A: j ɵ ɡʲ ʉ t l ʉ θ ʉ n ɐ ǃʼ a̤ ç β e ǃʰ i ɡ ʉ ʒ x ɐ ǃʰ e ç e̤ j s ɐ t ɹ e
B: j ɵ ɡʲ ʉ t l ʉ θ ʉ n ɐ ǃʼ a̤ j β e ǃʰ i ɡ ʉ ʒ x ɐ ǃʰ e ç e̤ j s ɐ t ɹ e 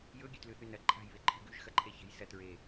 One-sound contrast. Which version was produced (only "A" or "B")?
B